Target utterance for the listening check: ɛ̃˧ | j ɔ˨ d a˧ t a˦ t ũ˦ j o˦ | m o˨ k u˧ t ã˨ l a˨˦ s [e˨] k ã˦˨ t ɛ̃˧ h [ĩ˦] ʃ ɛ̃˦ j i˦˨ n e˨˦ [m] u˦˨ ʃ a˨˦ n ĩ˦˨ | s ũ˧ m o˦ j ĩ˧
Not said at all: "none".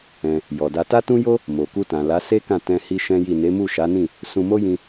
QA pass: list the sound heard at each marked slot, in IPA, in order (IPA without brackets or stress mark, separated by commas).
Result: e˦, i˦, m